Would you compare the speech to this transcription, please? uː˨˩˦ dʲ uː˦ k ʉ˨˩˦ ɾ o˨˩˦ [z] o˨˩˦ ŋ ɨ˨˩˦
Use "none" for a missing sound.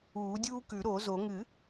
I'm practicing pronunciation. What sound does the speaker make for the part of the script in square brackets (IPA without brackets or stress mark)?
z